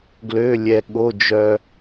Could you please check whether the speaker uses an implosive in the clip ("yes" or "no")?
yes